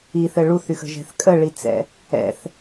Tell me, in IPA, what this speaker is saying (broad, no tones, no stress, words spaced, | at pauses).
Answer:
iθɘ ɭuθyxə̤ʒɛ̤θ kʼəɭit͡sɛ̰ | ɛ̰θ